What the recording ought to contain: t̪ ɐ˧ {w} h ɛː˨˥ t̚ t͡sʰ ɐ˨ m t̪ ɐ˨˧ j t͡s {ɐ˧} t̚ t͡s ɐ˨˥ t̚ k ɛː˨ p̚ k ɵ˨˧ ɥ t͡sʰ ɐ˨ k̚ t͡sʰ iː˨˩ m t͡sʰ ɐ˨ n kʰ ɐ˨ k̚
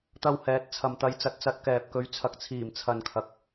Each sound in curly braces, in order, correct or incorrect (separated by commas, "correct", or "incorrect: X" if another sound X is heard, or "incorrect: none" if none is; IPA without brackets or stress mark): correct, incorrect: ɐ˨